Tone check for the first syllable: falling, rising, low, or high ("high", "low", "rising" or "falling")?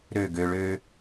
falling